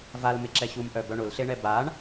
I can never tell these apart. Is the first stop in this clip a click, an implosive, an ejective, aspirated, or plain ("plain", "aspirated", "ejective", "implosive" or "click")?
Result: click